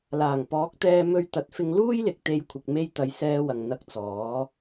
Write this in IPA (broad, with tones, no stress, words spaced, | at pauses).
laː˨˩ŋpɔː˨˥k̚t̪ɛː˧ mɵ˧ɥt̪ɐ˨˥t̚fɪ˧ŋ luː˥jlɪ˨k̚t̪e˨˧j kʷʰɪ˨k̚me˧j t̪ɐ˨˧jsɛː˧wɐ˨ŋ n̪ɐ˧k̚t͡sɔː˨˥